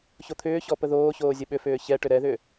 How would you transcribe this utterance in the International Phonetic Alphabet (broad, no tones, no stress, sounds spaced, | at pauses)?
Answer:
ç o t̪ʰ ʏː ç ɔ p ə ð oː ç oː zʲ ə ɓ ʏ f ʏː ç ɛ ʈ ʏ ɾ ɛ ð ʏ